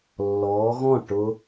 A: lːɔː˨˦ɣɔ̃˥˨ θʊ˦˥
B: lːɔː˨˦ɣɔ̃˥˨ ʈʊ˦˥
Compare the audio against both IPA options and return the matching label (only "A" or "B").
B